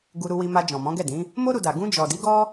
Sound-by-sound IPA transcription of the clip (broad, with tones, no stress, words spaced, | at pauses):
ɡu˧ɾu˧wi˧ma˧ d͡ʒɔ̃˨mɔ̃˨˦ɡɛ˦˨dĩ˨˦ | mo˦ ɾu˧da˨ ɡũ˧ d͡ʒɔ˨di˨˦ɡɔ˦